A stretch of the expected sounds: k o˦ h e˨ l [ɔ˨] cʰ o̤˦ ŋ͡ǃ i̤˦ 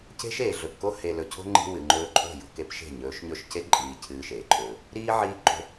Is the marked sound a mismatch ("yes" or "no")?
yes